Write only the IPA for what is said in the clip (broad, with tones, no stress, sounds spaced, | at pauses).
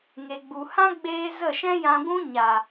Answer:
ŋ e˨ ɡ͡b u˨ h ã˦ ɡ͡b eː˧ z ə˦˨ ʃ ɛ̃˦ j ã˧ ɡʷ ũ˦ ɲ a˨